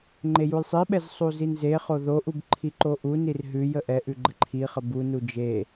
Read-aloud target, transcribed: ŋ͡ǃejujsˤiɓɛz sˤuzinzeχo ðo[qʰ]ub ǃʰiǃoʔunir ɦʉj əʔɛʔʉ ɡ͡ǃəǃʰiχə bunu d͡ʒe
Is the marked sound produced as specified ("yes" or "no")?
no